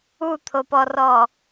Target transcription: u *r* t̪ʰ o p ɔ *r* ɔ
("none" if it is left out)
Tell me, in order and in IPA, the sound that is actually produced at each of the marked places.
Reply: none, r

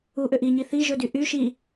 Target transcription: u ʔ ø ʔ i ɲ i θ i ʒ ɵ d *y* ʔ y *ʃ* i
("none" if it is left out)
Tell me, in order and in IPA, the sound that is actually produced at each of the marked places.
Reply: y, ʃ

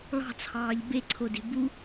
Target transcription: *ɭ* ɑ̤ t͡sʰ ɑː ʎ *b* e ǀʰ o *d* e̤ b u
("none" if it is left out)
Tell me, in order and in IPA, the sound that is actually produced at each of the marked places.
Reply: ɭ, b, d

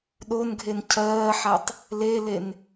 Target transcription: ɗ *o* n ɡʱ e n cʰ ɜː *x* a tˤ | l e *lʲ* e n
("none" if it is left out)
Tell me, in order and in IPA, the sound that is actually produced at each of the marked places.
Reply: o, ħ, l

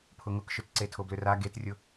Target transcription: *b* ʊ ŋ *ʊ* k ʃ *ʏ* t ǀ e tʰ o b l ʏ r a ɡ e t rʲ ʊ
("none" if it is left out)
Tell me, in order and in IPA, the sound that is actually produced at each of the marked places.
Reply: pʰ, ʊ, ʏ

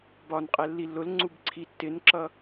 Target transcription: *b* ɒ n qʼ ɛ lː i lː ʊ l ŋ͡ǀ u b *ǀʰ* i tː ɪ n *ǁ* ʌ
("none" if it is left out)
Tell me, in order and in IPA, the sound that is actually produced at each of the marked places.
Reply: b, ǀʰ, ǁ

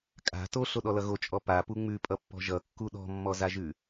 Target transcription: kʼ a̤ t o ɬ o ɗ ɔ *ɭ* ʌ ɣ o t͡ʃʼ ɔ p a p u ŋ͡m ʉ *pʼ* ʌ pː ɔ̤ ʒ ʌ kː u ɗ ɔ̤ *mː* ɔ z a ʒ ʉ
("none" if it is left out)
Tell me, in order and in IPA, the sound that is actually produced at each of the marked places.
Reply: l, pʼ, mː

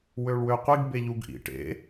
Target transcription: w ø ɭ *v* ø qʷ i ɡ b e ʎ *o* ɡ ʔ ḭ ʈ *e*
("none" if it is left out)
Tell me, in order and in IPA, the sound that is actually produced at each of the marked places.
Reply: w, u, ḛ

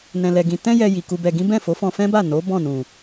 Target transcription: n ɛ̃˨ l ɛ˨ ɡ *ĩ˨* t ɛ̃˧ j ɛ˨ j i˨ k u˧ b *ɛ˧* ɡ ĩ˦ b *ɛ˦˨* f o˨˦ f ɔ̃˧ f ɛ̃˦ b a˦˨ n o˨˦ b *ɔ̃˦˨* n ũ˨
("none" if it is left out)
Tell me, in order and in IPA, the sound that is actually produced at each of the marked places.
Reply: ĩ˨, ɛ˧, ɛ̃˦˨, ɔ̃˦˨

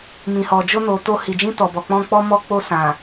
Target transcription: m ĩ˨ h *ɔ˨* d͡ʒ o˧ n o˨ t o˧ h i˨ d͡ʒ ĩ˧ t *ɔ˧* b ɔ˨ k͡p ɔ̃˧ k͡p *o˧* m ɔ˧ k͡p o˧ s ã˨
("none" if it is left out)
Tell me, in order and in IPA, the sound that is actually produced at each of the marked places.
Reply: ɔ˨, ɔ˨, ɔ˧

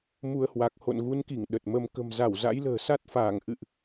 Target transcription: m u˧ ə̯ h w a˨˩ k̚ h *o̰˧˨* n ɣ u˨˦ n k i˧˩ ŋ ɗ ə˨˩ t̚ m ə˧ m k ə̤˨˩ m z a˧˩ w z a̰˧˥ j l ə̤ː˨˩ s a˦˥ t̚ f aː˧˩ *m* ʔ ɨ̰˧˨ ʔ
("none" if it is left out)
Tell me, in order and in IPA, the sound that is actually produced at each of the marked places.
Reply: o̰˧˨, ŋ

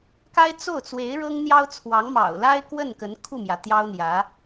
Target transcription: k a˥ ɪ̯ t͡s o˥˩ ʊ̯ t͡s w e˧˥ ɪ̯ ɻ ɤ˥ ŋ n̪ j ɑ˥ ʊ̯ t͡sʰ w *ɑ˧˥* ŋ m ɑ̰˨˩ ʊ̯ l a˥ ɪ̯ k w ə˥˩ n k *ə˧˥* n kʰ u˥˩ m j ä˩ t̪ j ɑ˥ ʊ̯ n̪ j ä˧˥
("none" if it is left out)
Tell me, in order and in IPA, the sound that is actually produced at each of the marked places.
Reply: ɑ˧˥, ə˧˥

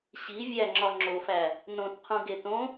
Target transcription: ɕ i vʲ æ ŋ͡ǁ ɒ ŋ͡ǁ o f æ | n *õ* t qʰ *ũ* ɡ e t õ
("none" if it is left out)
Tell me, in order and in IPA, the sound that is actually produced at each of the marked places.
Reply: õ, ũ

